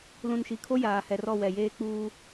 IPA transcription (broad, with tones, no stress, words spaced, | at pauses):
lũ˨nʃi˨kʰo˦ jaː˨hɛ˨rɔ˦˨ wɛ˨jeː˦k͡puː˦